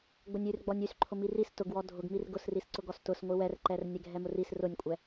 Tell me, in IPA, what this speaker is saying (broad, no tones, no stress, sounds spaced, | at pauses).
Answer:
ɡ͡b ʊ nʲ y r ɡ͡b ɔ nʲ y s ǃʰ ʊ m i r i s t ʊ ɡ w ɔ dʱ ʊ ɡ m i r ɡ ʊ s r i s ǀ ʊ ɡ ɔ s t ʊ s ŋʷ i w ɛ r ǃ ɛ r nʲ ɛ ɡʱ ɛ m ʊ r i s r ʊ nʲ kʷʼ ɛ